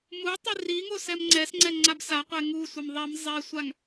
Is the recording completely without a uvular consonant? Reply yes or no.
no